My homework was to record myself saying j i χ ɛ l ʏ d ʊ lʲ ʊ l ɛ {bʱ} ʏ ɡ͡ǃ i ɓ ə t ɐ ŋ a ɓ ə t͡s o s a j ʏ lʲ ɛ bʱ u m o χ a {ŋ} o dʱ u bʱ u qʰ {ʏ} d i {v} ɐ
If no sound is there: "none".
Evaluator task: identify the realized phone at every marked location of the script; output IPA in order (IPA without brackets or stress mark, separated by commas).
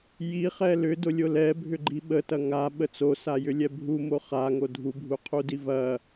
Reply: bʱ, ŋ, u, v